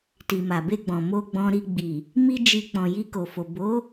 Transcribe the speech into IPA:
t i˨ m a˨ b e˧ ɡ͡b ɔ̃˨ m o˧ ɡ͡b ɔ̃˧ ɾ i˧ ɡ͡b i˨ | m i˦ d͡ʒ i˧ k͡p ɔ̃˨ j i˧ k o˨ f o˨ b o˨˦

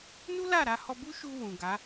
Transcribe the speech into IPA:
n u˦ l a˦˨ ɾ a˧ h ɔ˧ b u˦ ʃ u˧ w ũ˨ ɡ a˨˦

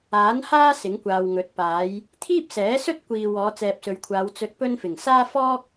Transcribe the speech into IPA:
aː˨˥ n h aː˥ s ɪ˨˥ ŋ kʷ aː˨ w ŋ ɵ˨˥ t̚ p aː˨˥ j | t̪ʰ iː˥ p̚ s ɛː˨˥ s ɵ˥ t̚ kʷ iː˨ w ɔː˨˧ t͡s ɛː˨ p̚ s ɵ˨ ɥ kʷʰ aː˨˧ w t͡s ɵ˧ t̚ p ɵ˥ n f ɪ˨˩ ŋ s aː˥ f ɔː˥ k̚

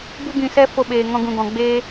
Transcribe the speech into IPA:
b u˦ ɡ ĩ˧ s ɛ˦ f o˧ ɓ eː˨ ŋ ɔ̃˧ ɡ ũ˨ ɡ ɔ̃˨ ɡ͡b eː˦

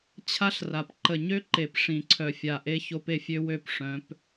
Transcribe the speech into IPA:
t͡ɕʰ a˦ ɬ r a˨ p ǃ ə˨ ɲ ø˦ ǃ e˨ p ʂ ĩ˨ ǀʰ œ˨ fʲ a˨ ʔ e˦ ç o˦ p e˦ fʲ ø˦ w ø˦˨ p ʂ œ̃˨˦ p

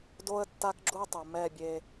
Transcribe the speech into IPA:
d o˥ ə̯ tː a˥ k ɡ͡ǁ u˥ tˤ u˩ m ɛ˥˩ bʲ e˧

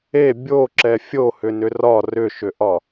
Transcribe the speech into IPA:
e bʲ o ǁ ɛ fʲ o h ʏ n ʏ r ɒ r ʏ ʃ ʏ ʔ ɒ

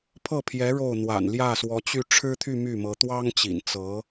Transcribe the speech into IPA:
pʰ ɤ˥˩ pʰ j ɛ˧˥ ɻ o˥˩ ʊ̯ n̪ w a̰˨˩ n l j ä˥˩ s w ɔ˧˥ t͡ɕ y˥˩ ʈ͡ʂʰ ɻ̩˥ t̪ʰ y˥˧ m y˥˩ m ɤ˧˥ t̪ w ɑ˥ ŋ t͡ɕ ḭ˨˩ n t͡s ɤ˧˥

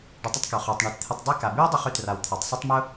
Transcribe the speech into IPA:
ɖ ʊ˨ tˤ ə˦ tˤ k œ˩ χ œ˩ tˤ ɳ œ˨ t t̪ʰ ɪ˨ tˤ dˤ e˦ k a˩ b y˥ w dˤ ʊ˥ χ y˦ t r a˨ w t̪ʰ a˩ tˤ sˤ ʏ˥ tˤ m ʊ˥

